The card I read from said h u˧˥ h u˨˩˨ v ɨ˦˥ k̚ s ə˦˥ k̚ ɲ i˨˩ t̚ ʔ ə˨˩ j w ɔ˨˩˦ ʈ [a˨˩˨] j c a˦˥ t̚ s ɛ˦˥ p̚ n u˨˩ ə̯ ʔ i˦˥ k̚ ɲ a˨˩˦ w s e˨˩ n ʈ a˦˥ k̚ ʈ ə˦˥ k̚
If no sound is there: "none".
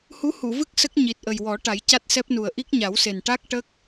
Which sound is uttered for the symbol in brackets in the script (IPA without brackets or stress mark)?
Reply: a˨˩˦